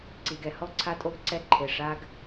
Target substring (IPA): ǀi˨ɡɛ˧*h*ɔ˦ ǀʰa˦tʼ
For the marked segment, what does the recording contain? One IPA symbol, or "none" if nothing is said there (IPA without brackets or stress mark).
h